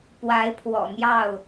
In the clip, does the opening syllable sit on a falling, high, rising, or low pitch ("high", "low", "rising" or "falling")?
rising